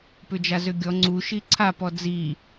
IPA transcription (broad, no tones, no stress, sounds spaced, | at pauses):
p ʏ d͡ʒ a z ʏ ɡʲ ɔ ŋ͡ǀ u ʃ i ǀʰ a p ɔ d͡z i